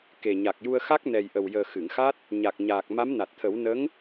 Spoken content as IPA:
ke˨˩ɲa˨˩k̚ju˧ə̯xa˦˥k̚ nɛ˨˩jʔə˨˩wjəː˨˩ xɨ˨˩˨ŋxa˦˥t̚ | ɲa˨˩k̚ɲaː˨˩k̚ ma˧˥mna˨˩t̚t̪ʰə˨˩˦w nə˧˥ŋ

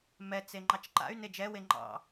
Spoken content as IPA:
mɛt͡se ŋ͡ǃɑt͡ʃǃa̰y̯ne d͡ʒɛwe ŋ͡ǃɑ̰

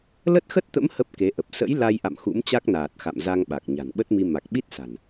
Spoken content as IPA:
lə˦˥t̚xə˦˥t̚t̪ə̰˧˥m hə˦˥p̚ke˨˦ʔə˨˩p̚ sə̰˧˥j la˧jʔa̰˧˨m xṵ˧˥mt͡ɕa˦˥k̚naː˨˩t̚ xa̰˧˨m za˧ŋɓa˨˩k̚ ɲa̤˨˩nɓə˦˥t̚mi˧ ma˨˩k̚ɓi˦˥t̚sa̤˨˩n

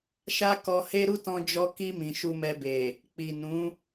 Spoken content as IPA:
ʃa˦kɔ˧he˦ ɾu˦tɔ̃˧d͡ʒɔ˧ ki˧ mĩ˨ʃu˧mɛ˧be˨ | k͡pi˨nũ˨˦

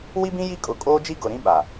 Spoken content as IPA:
wi˦bĩ˦ ji˦kʼʊ˨kʼoː˦d͡ʒi˦ ɡʊ˨ɾĩ˦ ɓa˨

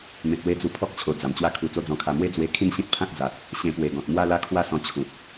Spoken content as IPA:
mẽ˨t̚we˧ d͡zu˧ pʰɔ˦k̚t͡ɕʰo˨˩ d͡za˨˩mt͡ɕwa˦kʰu˧ t͡so˦d͡zɔ̃˧kʰa˧ mwe˦d͡zwe˧ kʰĩ˥˧nɕĩ˦t̚pʰã˦t̚d͡za˨t̚ | ɕẽ˧pwe˨˩ɡɔ̃˨t̚ mwa˥˧la˥˧kʰwa˥˧sɔ̃˧ t͡ɕʰu˨p̚

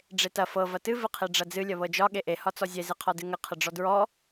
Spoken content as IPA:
ɖ͡ʐetɐ fɤ vɐtɨ vɨqʰeɖ͡ʐɐd͡zɨ lʲɐβɤd͡ʒɒ ɠeʔe hɒt͡sɔzʲe zɨqʰɔdɨŋə qʰəɖ͡ʐɔdɹɔ

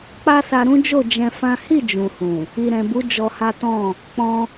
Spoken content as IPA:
k͡pa˦sa˧ɾũ˦d͡ʒo˦˨ d͡ʒɛ̃˧fã˦ hi˦˨ d͡ʒũ˨hũ˨ | i˨ɾɛ̃˨bu˨˦ d͡ʒɔ˧ha˦ tɔ̃˦˨ | k͡pɔ̃˧

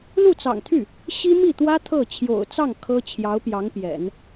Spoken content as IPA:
lu˥˩t͡sɑ̰˨˩ŋt̪ʰy˥˩ | ɕi˥mi˥˩t̪wä˥ t̪ʰɤ˥˩ t͡ɕʰjo̰˨˩ʊ̯t͡sɑ˥˩ŋ kʰɤ˥ t͡ɕʰjɑ˧˥ʊ̯pjɑ˧˥ŋpjɛ̰˨˩˦n

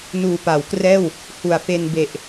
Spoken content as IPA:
nuː˨˩pa˩˦wkrɛː˥˩w | hu˨˩a̯fe˧n be˨˩ʔ

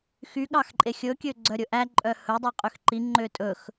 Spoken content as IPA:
xyɠɑx ǃʼexʲɵ kʲøɡ͡ǀœɾʲɵʔæ ǃʼœhɵdˤø qʼøxǃi ŋ͡ǃøtʼɵx

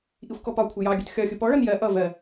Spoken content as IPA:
ʔixʷkɔpɒkʷʰɪ jɑɡʲʊt xʲɒxʲʊ pɔɭʌn jɜ ʔʌ vɜ

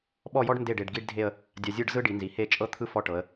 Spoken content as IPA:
ɓɔ˥˧jɔ˥ɖ nde˧˩ɖ e˩˧ɖ ɡi˥ɖdʱe˥˧ə̯ | dʲa˧zʲɯ˥˧ɖzɯ˥ɖi˩˧ nzi˩˧he˥˧ t͡ʃʼɤ˥t̪ʰɯ˥˧ fɔ˧ ʈɤ˩˧ə̯

